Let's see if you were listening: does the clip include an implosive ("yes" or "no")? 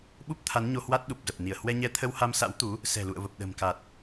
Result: yes